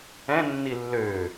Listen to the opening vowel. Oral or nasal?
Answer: nasal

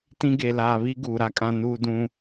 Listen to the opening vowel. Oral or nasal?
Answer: nasal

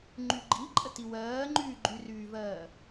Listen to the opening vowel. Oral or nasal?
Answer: oral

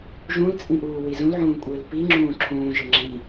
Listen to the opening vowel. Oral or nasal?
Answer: nasal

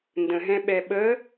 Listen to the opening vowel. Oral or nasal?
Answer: nasal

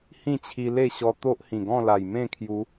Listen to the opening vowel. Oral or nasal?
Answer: nasal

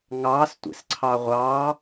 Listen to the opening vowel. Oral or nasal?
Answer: oral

